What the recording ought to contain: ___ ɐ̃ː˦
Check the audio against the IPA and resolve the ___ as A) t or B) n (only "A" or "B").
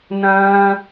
B